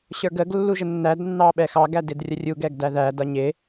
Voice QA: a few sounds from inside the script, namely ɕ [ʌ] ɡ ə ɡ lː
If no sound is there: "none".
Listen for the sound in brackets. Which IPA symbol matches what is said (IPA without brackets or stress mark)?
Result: ə˞